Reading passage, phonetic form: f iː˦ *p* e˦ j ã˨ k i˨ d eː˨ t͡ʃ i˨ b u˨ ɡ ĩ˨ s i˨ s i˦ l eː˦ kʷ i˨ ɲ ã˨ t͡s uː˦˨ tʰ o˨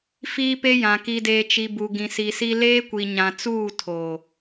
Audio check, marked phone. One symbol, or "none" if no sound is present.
p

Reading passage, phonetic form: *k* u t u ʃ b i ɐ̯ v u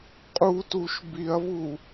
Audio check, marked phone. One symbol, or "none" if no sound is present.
qʼ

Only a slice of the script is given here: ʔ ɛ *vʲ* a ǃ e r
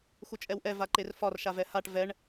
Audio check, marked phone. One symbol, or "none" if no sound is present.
v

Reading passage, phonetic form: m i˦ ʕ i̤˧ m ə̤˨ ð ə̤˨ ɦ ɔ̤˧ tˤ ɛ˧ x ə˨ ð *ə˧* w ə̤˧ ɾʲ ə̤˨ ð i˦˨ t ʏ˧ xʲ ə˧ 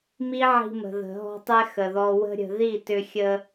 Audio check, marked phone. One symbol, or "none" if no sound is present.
ɔ˧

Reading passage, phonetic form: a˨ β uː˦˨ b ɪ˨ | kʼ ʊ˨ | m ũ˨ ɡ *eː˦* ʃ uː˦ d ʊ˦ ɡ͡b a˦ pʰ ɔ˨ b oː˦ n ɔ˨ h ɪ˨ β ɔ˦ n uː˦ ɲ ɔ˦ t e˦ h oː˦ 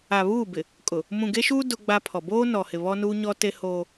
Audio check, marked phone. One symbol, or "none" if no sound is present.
e˦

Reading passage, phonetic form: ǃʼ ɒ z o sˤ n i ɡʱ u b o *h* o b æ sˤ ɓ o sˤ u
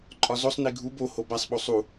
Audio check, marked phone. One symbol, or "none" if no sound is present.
h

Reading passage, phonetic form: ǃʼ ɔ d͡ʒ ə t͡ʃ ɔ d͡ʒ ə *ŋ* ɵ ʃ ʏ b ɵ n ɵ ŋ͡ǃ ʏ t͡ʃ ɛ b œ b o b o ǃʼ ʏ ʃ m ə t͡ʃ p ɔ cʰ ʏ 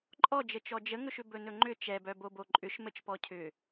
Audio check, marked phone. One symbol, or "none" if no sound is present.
ŋ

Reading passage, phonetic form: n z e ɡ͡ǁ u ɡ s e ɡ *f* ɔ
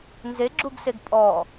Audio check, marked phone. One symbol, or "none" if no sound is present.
pʼ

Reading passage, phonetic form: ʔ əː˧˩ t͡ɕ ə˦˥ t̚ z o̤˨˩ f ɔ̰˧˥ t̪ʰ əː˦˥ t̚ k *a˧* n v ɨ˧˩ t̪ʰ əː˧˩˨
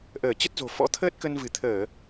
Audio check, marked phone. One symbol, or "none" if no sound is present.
ə˧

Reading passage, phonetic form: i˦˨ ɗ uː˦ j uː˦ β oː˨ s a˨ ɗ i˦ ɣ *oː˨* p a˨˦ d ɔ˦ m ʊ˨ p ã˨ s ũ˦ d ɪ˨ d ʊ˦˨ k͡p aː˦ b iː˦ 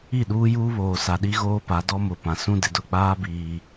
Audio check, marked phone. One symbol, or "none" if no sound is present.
oː˦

